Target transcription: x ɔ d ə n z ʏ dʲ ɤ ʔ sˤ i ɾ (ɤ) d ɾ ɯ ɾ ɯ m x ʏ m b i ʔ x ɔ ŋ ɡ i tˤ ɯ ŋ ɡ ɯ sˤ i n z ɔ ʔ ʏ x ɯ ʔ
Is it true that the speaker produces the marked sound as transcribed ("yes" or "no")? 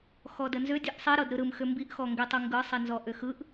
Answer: yes